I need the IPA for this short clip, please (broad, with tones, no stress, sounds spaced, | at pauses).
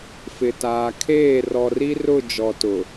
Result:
f ɪ˨ t aː˨ kʰ eː˦˨ r ɔ˨ r i˦ r ʊ˦˨ d͡ʒ ɔ˨ t ʊ˨